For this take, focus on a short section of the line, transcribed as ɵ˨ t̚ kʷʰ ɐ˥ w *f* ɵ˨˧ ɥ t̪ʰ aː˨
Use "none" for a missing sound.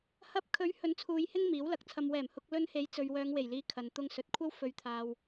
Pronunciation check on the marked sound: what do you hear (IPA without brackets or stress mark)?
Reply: f